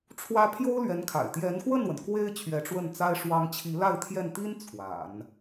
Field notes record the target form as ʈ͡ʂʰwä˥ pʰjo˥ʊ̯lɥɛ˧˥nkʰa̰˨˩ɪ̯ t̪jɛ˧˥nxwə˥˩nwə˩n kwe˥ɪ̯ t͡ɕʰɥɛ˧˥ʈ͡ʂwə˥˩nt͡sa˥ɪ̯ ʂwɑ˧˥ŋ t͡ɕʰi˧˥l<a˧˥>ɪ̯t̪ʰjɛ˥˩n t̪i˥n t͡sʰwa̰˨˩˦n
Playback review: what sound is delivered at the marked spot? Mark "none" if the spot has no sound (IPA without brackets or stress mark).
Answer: a˥˧